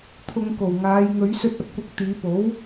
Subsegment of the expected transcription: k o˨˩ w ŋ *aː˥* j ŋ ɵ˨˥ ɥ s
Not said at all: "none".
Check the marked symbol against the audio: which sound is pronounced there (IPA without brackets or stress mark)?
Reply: aː˨˧